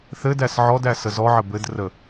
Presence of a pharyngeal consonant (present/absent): present